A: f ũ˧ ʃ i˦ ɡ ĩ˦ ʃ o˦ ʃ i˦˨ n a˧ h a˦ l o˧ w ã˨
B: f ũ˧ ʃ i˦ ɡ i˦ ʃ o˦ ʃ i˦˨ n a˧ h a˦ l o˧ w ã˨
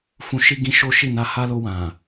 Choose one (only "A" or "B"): A